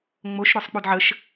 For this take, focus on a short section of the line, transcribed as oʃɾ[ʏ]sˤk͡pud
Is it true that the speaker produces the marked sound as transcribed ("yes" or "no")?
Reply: yes